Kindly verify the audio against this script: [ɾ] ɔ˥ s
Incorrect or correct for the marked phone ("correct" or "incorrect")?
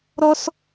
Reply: correct